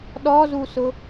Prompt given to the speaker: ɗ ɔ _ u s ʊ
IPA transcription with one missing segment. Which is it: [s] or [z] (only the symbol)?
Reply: z